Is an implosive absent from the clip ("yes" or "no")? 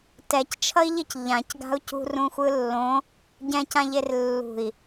yes